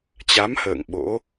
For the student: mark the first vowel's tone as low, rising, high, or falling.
rising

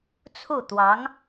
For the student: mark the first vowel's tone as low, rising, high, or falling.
falling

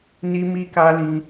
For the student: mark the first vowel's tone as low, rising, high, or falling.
high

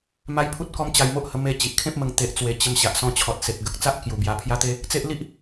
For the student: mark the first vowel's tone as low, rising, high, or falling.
high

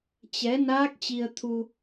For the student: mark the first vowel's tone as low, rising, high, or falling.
rising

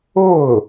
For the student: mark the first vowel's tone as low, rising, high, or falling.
falling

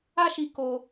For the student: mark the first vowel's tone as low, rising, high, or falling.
high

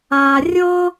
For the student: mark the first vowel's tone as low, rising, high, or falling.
low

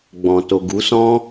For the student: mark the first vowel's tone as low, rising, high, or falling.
low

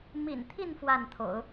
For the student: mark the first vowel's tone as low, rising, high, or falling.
low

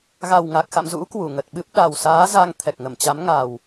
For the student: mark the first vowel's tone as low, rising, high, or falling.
low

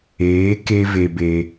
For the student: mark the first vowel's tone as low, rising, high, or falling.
rising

